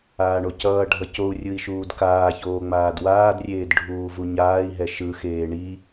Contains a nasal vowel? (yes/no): no